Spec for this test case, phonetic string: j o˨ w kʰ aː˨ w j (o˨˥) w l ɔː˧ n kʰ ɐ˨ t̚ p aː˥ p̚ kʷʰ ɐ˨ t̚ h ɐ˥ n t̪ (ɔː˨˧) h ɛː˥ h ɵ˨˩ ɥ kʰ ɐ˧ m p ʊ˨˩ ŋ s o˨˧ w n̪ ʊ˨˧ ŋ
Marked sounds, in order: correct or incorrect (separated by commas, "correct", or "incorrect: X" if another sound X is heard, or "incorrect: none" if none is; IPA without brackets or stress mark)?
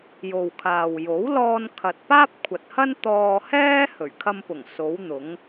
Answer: correct, incorrect: ɔː˧